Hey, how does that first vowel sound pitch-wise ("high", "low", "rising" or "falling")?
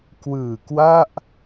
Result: low